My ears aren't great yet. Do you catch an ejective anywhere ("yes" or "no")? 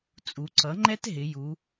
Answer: yes